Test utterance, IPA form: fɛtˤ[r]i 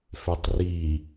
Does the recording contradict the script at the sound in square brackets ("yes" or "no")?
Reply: no